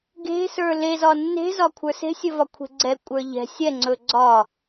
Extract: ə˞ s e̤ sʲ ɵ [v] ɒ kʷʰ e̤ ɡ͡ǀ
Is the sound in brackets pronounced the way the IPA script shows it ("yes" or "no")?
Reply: yes